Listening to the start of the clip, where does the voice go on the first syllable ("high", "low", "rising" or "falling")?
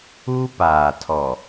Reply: high